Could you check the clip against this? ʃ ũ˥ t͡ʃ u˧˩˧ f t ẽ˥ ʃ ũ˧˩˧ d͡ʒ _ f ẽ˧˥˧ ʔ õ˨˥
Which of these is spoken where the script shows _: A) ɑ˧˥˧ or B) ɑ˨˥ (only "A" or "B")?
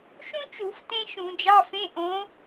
A